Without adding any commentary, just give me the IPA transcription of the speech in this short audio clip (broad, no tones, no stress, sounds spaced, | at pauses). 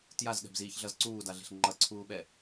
t j a z ɠ ɛ̤ b z iː ç ɮ ʌ z ǀ uː d a ɮ e̤ ɬ ŋ͡ǃ ʌ ǀʰ uː ɓ ɛ